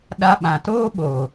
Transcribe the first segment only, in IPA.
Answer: ɗ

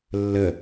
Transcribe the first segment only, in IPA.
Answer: lː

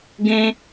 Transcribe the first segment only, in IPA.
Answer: ɡ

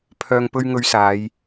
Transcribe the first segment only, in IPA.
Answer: pʰ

